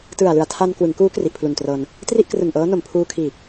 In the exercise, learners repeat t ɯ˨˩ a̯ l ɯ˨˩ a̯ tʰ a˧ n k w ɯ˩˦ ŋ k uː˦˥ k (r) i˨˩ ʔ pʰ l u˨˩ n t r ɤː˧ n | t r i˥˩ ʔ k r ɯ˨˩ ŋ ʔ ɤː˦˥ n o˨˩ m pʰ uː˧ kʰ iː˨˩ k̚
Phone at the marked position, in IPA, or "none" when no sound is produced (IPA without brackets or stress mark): r